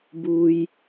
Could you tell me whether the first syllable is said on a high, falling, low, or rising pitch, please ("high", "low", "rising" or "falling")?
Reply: low